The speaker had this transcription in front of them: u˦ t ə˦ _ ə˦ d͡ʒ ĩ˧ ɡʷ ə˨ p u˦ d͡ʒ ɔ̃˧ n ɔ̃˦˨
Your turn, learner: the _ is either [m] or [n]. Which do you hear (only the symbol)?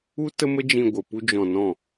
m